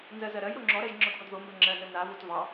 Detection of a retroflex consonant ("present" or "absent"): absent